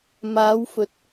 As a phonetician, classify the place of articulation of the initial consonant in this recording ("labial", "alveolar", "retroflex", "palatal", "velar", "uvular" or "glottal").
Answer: labial